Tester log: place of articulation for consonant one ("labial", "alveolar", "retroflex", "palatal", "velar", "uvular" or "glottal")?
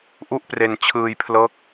glottal